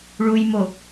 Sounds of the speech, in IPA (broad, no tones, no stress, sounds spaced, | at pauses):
ɭ u j m o